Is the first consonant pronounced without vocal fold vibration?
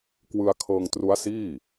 yes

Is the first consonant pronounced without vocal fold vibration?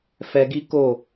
yes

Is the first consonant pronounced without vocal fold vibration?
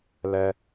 no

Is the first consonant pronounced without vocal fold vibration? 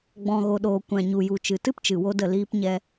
no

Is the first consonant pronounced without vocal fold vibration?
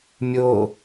no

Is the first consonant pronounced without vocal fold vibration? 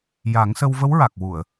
no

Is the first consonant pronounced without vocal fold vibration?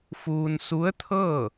yes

